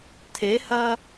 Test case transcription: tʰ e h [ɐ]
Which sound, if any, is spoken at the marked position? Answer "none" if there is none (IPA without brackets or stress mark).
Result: ɐ